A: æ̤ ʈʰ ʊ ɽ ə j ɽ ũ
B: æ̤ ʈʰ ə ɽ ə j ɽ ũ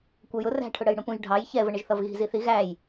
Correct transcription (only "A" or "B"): A